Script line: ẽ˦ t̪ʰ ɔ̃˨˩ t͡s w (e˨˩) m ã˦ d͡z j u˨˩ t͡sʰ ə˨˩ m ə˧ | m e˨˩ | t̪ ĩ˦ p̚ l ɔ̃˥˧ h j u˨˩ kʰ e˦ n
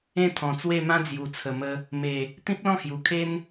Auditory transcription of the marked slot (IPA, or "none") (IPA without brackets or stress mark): e˥˧